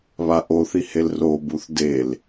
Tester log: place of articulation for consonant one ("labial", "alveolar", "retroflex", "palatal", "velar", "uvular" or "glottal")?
labial